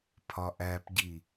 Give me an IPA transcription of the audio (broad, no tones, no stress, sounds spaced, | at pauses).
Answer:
pʰ ɒ ʔ æ p ɟ i